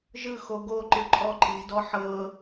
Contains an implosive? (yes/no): no